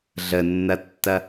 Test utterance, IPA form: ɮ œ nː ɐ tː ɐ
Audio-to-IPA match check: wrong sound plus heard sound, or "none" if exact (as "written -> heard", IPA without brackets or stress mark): œ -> ə